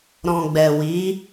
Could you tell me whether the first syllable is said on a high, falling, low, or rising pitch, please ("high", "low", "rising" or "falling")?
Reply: low